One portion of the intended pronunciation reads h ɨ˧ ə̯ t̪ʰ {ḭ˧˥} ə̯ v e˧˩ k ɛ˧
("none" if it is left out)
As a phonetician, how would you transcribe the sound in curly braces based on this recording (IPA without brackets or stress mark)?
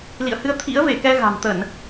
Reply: ḭ˧˥